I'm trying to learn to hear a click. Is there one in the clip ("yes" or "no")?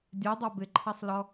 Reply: yes